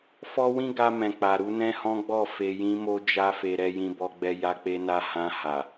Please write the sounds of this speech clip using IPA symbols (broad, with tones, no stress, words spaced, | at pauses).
fɔ˦wĩ˦ɡa˧ mɛ̃˨k͡pa˨ ɾu˧nɛ̃˦hɔ̃˦ɡ͡bɔ˦˨ fe˨jĩ˧mo˧ d͡ʒa˦fe˧ ɾɛ˧jĩ˧bɔ˧ɡ͡bɛ˧ ja˧k͡pe˧na˧ hã˧ha˨